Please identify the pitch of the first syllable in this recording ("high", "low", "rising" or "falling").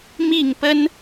falling